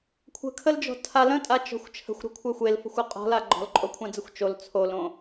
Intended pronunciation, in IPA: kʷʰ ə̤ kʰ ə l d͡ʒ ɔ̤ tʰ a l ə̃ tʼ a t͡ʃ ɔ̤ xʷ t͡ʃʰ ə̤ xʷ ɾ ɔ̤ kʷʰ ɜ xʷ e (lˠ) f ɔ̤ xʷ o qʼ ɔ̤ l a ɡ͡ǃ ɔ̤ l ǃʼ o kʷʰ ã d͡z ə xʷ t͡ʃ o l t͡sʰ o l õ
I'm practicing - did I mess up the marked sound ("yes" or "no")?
yes